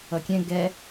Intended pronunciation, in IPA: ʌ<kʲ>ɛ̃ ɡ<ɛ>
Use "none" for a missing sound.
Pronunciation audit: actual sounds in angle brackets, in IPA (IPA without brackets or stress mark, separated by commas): kʲ, ɛ